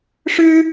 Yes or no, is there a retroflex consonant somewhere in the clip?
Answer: yes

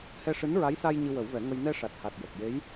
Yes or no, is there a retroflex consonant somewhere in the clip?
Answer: yes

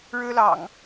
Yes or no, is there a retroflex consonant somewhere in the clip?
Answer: yes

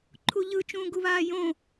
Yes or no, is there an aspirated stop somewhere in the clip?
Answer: yes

